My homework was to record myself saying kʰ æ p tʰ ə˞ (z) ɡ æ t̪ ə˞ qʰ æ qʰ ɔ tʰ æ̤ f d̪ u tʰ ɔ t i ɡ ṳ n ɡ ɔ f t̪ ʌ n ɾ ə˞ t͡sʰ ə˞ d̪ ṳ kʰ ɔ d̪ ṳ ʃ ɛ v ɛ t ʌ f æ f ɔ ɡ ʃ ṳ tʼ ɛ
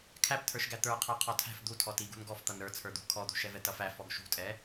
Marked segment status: incorrect: ʃ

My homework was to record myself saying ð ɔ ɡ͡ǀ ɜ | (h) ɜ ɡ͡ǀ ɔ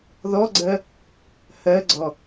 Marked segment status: correct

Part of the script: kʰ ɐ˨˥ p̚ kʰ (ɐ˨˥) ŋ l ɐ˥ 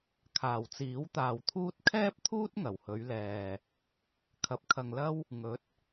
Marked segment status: incorrect: ɐ˨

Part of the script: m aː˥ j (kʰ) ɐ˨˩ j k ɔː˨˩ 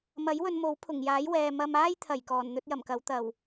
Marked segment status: incorrect: t̪ʰ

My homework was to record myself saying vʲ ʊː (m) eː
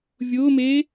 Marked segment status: correct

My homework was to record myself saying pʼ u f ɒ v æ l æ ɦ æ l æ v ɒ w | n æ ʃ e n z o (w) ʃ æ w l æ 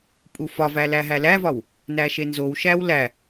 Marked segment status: correct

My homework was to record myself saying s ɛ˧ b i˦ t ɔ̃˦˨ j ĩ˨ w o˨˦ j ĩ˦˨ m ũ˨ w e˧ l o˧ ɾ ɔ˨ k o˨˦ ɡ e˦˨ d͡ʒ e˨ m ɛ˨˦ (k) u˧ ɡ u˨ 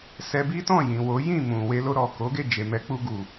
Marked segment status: incorrect: k͡p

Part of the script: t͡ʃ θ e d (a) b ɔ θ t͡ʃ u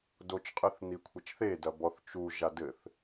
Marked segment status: incorrect: ɐ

